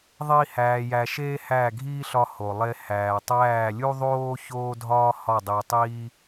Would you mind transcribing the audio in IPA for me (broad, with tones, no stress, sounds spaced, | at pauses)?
ðˤ i˦ h æː˧ j æ˧ ʃ eː˦ h æ˦˨ ɡʱ iː˦ ɬ ɒ˧ h o˨ lˠ e˧ h æː˨ tˤ æː˦˨ lʲ u˦ ðˤ oː˦ ç oː˦ dʱ ɒː˦ h ɒ˦˨ dˤ i˧ tˤ iː˦